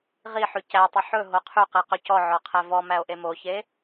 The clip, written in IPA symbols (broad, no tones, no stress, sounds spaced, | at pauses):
ʁ i ħ ʉ c æ tˤ y ħ ɵ ɦ o qʰ y q i q ɵ c ɔ ʕ ɔ qʰ æ v ɔ m æ o̯ ʔ e m o ç e